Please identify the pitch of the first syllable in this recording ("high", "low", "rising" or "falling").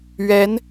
rising